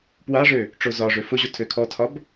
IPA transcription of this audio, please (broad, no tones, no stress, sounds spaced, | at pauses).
p w a ʐ ø | ʈ͡ʂ o z ɒ ʐ ø f ʊ ʑ o tʰ ø kʰ ɔ tʰ ɒ b